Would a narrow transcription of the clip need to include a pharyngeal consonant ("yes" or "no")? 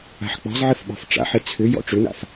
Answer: yes